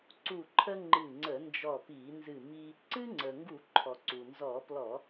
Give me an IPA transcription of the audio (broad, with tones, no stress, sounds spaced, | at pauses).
ǀ u˧˩ ǃʰ ə˦ ŋ͡ǃ ɨ˧˩ ŋ͡ǀ ə˧˩˧ n d͡ʒ ɔ˧˩ p i˧˩˧ n z ɨ˧˩ m i˦ | ǀ ɨ˦ ŋ͡ǀ ə˩ ŋ ɡ u˧˩˧ ǃʰ ɔ˩ ǀ u˩ n z ɔ˧˩˧ p l ɔ˧˩˧